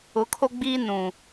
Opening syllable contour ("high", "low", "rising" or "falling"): rising